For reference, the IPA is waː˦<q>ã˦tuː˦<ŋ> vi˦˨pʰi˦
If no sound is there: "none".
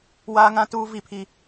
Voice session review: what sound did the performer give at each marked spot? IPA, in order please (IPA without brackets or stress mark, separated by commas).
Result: ŋ, none